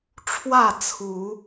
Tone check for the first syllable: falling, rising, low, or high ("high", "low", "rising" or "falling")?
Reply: falling